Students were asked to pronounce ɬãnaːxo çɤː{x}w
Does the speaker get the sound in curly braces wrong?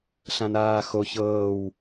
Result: yes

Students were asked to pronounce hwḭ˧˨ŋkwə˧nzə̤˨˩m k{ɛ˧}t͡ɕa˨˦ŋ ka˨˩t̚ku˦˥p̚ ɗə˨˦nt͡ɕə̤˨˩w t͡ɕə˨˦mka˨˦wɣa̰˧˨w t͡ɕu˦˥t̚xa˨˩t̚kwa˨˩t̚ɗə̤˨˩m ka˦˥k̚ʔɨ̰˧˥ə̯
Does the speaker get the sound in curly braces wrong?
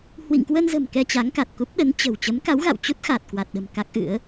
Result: no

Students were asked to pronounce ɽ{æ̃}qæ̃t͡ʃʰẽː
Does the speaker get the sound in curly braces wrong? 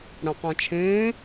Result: no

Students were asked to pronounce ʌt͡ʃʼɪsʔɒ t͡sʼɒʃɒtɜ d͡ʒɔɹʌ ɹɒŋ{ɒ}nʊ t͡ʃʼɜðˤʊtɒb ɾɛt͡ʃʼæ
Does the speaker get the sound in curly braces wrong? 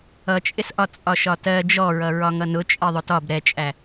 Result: yes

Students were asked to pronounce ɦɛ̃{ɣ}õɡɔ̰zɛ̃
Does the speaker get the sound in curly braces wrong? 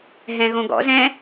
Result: no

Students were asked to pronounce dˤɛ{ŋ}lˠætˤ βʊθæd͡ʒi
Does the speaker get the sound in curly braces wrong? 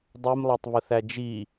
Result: yes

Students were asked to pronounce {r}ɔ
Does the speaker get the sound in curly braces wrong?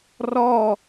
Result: no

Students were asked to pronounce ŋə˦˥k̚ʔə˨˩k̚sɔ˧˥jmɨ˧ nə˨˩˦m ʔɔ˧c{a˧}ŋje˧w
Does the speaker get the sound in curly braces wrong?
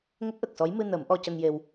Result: yes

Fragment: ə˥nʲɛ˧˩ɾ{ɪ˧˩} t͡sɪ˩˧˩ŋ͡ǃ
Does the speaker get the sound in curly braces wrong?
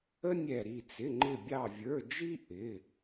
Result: yes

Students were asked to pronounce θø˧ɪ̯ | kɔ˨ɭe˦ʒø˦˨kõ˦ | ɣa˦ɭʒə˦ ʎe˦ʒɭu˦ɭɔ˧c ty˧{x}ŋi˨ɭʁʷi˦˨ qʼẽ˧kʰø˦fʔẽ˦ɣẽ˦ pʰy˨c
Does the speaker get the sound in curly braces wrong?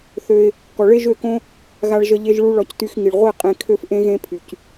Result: no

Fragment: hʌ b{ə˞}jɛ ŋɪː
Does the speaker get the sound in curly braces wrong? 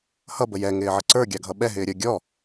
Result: yes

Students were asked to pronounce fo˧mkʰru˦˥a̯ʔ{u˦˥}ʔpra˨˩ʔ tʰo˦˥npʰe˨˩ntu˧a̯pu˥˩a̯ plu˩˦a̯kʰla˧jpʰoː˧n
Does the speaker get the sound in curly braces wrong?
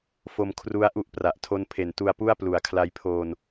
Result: no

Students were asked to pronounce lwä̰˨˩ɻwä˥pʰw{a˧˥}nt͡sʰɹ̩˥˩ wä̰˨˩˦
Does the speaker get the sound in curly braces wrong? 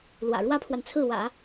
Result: yes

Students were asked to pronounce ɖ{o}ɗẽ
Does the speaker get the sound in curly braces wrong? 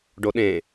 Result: no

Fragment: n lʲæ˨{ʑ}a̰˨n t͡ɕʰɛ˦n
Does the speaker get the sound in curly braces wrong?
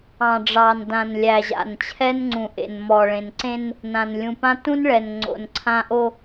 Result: no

